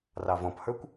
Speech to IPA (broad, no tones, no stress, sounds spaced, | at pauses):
r ɑ v ɔ̃ p h ə˞ kʷ